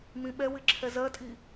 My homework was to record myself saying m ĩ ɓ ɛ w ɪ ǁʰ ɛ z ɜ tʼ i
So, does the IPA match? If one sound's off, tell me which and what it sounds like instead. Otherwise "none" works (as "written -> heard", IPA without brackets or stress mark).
none